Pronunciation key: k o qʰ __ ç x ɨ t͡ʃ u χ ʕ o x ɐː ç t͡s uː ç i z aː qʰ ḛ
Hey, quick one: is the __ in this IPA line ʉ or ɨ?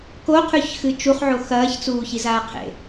ʉ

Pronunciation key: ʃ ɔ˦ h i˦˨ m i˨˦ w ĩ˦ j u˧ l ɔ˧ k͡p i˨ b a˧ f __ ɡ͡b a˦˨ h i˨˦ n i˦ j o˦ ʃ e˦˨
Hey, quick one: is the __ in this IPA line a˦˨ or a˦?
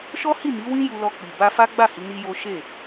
a˦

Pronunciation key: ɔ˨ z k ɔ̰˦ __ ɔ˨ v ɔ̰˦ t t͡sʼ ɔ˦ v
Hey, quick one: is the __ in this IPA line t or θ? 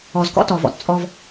t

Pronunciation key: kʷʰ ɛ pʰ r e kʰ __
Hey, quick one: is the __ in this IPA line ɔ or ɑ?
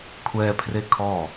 ɔ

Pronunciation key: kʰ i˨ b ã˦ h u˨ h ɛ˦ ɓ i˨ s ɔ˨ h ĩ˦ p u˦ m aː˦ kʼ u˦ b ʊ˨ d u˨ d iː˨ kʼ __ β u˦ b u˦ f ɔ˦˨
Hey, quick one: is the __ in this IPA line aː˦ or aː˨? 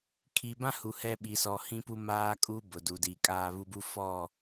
aː˦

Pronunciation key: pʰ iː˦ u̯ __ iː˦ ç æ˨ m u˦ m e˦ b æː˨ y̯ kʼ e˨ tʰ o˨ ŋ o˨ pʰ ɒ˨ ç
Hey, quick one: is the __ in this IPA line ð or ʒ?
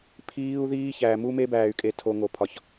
ð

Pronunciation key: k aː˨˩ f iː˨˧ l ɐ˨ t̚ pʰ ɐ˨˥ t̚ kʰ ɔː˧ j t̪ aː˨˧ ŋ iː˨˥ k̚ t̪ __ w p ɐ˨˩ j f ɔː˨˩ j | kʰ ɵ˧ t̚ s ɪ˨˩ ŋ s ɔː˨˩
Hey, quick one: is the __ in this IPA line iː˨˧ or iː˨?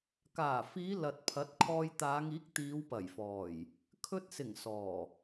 iː˨˧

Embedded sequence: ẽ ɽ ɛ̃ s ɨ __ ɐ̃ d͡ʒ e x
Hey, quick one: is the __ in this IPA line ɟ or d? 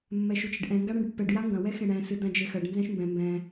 d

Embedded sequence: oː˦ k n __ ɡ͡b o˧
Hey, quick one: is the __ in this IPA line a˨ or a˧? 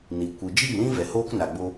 a˨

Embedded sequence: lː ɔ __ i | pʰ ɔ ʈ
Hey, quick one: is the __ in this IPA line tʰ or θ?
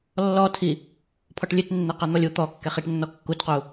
tʰ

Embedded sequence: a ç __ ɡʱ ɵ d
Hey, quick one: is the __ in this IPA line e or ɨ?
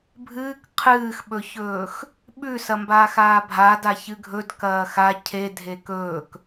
ɨ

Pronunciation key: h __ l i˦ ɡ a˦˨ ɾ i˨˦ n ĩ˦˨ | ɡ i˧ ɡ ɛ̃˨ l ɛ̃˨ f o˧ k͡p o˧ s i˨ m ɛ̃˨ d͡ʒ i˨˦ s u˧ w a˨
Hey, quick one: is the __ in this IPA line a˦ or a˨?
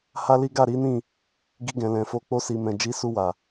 a˦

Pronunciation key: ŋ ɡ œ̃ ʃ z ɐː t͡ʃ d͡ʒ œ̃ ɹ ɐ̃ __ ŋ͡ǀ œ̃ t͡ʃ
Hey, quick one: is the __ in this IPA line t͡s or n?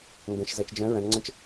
n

